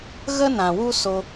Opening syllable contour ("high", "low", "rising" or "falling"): high